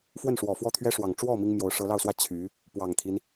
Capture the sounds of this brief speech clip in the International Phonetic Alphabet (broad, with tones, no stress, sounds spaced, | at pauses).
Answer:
f w ə˥˩ n ʂ w ɔ˨˩ f w ɔ˥˩ t̪ʰ ɥ ɛ˥ ʂ w ɑ˨˩ ŋ ʈ͡ʂ w ɔ˥˩ m i˥ ŋ m j o˧˥ ʊ̯ ʂ ɤ˧˥ l ɑ˥˩ ʊ̯ s w ä˥ t͡ɕʰ y˧˥ | p w ɑ˨˩ ŋ t̪ʰ i˦ n